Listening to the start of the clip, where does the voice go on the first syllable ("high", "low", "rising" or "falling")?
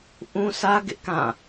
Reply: high